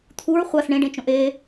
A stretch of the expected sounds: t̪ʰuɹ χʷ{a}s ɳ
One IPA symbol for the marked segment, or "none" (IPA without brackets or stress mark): a